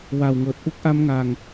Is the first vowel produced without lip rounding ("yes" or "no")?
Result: yes